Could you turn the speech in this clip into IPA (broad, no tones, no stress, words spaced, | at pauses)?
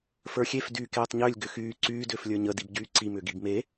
fə˞xʲef dyːkeːtˤɲʏːlʲ ɡʏxyː ǀyː dʏːflʲə˞ɲə dibɟyːǀi mʏːɡibme